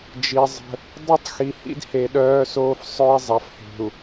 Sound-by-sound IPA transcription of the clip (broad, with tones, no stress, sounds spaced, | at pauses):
d͡ʒ i˨ zˤ ə̤˦ | dˤ u˦ tˤ x i˨ h ḭ˦ d h e˨ ɗ œː˦ s oː˦ f sˤ œ˦ i̯ zˤ a˨ f h e̤˨ u̯